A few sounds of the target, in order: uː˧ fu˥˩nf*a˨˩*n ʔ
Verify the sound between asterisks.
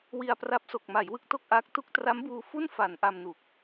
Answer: incorrect: a˩˦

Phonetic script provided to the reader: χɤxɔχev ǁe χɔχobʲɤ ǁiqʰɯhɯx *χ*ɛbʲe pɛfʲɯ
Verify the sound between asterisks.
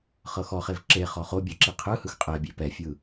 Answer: incorrect: qʼ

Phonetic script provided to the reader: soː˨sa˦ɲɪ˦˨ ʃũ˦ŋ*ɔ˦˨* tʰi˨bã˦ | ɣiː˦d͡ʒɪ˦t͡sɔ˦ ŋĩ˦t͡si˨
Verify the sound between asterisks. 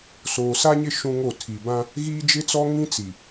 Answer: incorrect: o˦˨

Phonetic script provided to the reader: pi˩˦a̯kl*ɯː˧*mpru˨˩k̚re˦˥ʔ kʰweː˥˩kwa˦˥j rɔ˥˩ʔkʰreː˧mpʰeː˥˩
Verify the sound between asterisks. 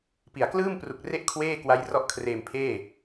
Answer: incorrect: ɯː˥˩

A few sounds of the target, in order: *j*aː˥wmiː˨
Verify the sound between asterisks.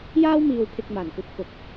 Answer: correct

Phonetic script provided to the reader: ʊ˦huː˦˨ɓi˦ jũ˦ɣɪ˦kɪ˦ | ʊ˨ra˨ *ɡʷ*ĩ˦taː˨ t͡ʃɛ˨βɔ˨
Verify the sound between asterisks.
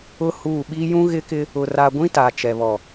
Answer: correct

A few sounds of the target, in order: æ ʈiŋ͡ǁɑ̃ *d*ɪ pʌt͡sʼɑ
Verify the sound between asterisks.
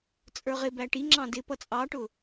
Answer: correct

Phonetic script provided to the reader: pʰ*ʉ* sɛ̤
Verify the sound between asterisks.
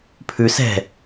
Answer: correct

